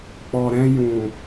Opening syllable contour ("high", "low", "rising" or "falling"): low